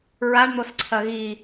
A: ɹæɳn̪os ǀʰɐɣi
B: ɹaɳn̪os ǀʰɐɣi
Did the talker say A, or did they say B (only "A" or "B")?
B